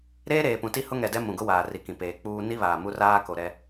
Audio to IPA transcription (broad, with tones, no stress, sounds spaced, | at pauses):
ɾ eː˦ ɾ eː˨ p ũ˨ t i˦ h ʊ˦ ŋ ɛ˨ d ɛ˦ m ũ˨ ɡ ʊ˦ w aː˨ r i˨ k ĩ˨ p eː˨ k͡p uː˦ n i˦ β aː˨ m u˦ r aː˦ k o˨ ɾ ɛ˨